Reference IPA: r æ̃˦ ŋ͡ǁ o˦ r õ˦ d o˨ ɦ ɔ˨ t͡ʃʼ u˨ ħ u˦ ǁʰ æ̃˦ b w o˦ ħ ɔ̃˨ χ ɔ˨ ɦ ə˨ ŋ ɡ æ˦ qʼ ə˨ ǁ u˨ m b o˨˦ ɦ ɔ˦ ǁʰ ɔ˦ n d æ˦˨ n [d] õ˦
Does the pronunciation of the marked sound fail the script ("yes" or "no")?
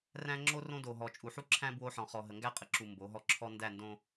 no